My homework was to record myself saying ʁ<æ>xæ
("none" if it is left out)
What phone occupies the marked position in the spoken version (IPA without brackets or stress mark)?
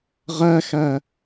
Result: æ